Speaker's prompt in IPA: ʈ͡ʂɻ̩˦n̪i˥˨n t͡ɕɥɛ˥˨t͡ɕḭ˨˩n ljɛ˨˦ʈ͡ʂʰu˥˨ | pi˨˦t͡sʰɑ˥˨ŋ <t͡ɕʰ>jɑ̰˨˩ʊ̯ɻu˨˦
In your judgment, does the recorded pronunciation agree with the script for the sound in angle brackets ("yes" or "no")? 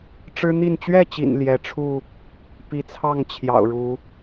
yes